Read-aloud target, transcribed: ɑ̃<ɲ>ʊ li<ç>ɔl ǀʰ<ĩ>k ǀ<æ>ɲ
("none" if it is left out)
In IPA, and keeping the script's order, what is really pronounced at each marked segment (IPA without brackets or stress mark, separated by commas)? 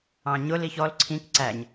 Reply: ɲ, ç, ĩ, æ